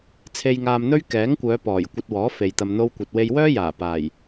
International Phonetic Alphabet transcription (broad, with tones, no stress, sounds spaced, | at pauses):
t͡sʰ e˧ j ŋ aː˧ m n̪ ɵ˥ ɥ k ɛː˨˥ ŋ kʷ œː˨˧ p ɔː˨˩ j kʷ ɐ˧ t̚ w ɔː˨˥ f e˨ j t̪ ɐ˧ m n̪ o˥ w kʷ ɐ˧ t̚ w e˧ j w œː˥ j aː˨˩ p aː˨˩ j